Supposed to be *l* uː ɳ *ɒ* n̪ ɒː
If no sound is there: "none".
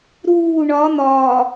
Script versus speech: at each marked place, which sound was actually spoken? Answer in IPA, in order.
ɾ, ɒ

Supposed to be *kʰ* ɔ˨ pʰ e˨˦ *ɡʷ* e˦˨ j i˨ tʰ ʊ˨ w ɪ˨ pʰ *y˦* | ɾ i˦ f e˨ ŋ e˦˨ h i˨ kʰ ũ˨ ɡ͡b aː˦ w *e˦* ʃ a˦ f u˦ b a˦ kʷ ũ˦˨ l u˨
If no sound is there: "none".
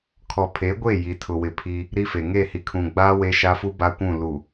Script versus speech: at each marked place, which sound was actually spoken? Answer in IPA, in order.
kʰ, ɡʷ, i˦, e˦

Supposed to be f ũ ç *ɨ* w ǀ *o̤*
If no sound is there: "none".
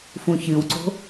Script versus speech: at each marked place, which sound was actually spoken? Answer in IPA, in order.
ɨ, o̤

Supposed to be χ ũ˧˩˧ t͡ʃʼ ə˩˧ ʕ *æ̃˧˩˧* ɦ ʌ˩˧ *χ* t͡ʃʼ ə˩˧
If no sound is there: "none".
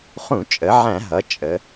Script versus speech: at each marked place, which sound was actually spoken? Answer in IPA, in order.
æ̃˧˩˧, none

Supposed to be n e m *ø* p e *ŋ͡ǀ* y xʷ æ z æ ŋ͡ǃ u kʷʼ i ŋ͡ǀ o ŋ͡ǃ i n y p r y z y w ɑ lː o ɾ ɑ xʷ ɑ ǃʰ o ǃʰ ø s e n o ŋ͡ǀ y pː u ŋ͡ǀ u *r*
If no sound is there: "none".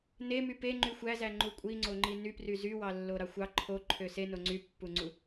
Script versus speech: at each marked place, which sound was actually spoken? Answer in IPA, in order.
y, ŋ͡ǃ, none

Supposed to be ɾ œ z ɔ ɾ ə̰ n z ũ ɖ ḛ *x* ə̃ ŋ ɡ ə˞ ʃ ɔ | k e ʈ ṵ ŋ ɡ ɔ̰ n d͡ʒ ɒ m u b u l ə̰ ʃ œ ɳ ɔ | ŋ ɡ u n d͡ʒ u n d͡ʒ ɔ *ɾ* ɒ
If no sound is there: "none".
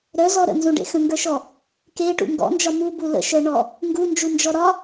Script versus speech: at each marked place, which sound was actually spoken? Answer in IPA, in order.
x, ɾ

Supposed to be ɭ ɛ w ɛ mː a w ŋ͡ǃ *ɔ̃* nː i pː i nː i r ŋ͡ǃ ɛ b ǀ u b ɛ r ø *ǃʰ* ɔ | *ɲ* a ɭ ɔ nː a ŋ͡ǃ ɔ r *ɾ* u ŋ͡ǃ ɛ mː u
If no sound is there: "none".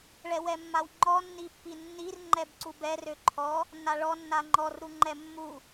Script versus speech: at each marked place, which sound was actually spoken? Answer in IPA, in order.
ɔ, ǃʰ, nː, ɾ

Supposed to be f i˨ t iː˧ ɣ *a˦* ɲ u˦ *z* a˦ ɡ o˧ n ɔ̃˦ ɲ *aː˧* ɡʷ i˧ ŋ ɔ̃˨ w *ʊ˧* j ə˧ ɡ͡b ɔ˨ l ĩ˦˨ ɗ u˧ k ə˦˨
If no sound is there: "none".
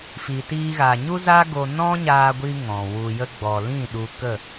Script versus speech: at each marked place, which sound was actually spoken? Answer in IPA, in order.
a˨, z, aː˧, u˧

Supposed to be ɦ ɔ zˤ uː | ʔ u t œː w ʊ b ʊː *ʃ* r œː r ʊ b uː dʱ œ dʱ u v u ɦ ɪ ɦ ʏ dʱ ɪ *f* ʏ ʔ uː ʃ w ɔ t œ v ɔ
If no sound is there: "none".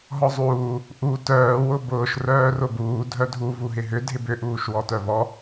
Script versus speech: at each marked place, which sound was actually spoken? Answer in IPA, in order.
ʃ, b

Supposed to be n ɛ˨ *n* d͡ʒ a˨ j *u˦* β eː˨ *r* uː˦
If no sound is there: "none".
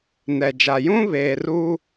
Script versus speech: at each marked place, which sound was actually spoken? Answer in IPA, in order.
none, ũ˦, r

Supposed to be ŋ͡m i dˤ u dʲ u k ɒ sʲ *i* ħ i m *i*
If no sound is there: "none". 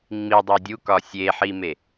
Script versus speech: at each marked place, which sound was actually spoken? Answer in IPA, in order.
e, e

